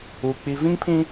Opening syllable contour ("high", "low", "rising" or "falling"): low